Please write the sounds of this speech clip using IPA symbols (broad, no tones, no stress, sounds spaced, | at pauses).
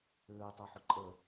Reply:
ɘː tˤ a ħ ʊ ǃʼ ə